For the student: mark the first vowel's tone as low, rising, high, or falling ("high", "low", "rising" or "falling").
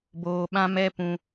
low